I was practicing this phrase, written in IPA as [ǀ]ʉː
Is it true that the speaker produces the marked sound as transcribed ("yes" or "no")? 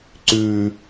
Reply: yes